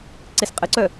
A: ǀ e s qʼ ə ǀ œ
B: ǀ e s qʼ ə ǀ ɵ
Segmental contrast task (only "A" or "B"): A